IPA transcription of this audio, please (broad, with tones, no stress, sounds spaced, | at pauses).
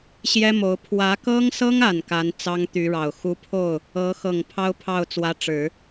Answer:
ɕ j ɛ˥ m o˧˥ ʊ̯ pʰ w ä˧˥ k ɤ˥ ŋ s ɤ˥ ŋ a˨˩ n k a˧˥ n t͡s ɑ˥ ŋ t̪ y˧˥ ɻ ɑ˨˩ ʊ̯ x u˧˥ pʰ o˥˩ ʊ̯ | ɤ˧˥ x ɤ˨˩ ŋ pʰ ɑ˥ ʊ̯ pʰ ɑ˥˩ ʊ̯ t͡s w ä˧˥ ʈ͡ʂ ɻ̩˨˩˦